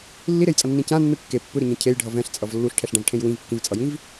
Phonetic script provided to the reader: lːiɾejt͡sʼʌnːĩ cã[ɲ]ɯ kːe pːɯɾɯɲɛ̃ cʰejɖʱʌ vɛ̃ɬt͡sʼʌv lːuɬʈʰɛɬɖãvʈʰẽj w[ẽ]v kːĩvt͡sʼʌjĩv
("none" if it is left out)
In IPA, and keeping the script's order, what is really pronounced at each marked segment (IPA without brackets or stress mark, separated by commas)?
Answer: nː, ĩ